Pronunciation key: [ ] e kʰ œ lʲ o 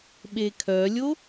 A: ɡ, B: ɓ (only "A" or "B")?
B